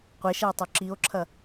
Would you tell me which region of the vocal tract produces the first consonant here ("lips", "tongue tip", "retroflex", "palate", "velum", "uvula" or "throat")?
uvula